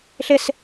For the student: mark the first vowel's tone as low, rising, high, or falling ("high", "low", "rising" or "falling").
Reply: high